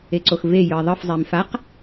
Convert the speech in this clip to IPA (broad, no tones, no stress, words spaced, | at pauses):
eǀoxve jɯi̯ðˤɯf zˤimfaq